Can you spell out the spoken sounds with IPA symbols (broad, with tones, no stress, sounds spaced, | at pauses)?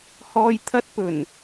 h ɔː˨ j t̪ʰ ɐ˧ t̚ p ɵ˨˩ n